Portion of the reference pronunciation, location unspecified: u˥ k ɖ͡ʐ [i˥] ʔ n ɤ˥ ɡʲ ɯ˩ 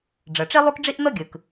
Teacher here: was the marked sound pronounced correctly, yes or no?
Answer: yes